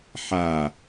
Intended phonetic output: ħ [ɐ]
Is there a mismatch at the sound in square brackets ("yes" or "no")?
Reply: yes